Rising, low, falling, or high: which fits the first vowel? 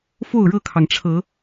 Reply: falling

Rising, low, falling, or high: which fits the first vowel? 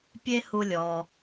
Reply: high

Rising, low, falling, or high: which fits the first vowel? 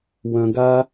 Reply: low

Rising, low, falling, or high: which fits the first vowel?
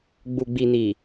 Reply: low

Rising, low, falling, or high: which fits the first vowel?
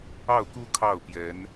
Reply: falling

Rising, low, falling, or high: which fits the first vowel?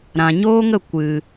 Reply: low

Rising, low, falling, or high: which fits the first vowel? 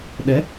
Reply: rising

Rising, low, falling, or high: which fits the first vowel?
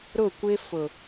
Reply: falling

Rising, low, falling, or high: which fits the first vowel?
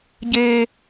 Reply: high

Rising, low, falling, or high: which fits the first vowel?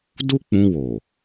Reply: high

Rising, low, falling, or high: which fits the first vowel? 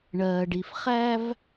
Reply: low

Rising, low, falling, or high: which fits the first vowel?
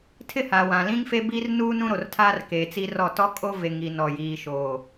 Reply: falling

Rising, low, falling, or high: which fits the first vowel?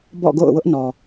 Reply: falling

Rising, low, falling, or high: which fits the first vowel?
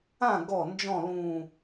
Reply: falling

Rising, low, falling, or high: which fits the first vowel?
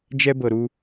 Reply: high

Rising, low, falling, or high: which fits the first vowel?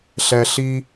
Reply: low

